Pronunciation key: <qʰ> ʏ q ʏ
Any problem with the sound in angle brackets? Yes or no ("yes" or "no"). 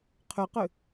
no